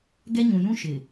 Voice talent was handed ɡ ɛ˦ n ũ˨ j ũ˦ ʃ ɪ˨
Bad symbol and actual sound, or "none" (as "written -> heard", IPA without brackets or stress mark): n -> ɲ